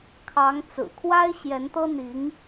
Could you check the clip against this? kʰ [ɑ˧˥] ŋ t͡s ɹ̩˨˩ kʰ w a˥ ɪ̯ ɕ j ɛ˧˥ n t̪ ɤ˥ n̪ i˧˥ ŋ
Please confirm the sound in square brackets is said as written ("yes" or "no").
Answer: yes